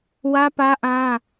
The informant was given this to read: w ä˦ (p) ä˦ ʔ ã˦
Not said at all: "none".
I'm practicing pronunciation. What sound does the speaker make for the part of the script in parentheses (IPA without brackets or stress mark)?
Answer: p